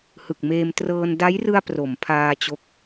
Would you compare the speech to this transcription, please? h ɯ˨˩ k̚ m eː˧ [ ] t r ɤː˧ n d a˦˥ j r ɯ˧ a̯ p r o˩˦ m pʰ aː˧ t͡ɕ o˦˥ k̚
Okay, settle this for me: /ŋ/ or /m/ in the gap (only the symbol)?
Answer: m